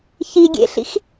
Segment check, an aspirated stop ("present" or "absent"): absent